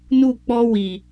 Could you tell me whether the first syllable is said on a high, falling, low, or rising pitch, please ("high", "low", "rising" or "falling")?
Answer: falling